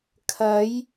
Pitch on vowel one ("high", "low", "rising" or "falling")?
rising